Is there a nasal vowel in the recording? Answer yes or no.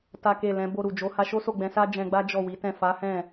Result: yes